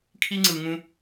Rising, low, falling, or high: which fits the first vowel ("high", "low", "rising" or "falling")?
high